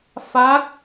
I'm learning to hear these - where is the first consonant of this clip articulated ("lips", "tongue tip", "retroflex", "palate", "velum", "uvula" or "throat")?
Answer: lips